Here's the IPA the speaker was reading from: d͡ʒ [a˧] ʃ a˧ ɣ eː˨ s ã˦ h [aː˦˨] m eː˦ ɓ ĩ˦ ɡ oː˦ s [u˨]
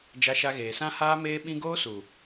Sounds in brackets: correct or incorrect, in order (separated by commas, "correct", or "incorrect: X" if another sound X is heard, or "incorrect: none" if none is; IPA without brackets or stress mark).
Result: correct, incorrect: aː˦, correct